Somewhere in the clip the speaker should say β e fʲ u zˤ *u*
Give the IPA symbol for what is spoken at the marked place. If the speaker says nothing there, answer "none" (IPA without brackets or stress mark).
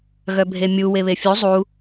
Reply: u